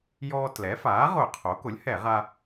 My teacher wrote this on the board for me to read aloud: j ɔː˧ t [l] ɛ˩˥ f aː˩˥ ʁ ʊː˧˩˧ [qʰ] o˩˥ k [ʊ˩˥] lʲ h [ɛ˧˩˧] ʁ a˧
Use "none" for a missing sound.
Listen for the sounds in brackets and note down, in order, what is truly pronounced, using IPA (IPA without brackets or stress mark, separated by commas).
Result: l, qʰ, ʊ˩˥, ɛ˧˩˧